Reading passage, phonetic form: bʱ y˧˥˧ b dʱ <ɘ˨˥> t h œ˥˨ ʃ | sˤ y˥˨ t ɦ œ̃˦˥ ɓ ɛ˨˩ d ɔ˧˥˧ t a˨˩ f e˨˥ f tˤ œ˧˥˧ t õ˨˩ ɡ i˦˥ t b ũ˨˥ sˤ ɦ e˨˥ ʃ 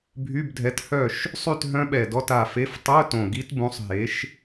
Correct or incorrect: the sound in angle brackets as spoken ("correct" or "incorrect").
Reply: incorrect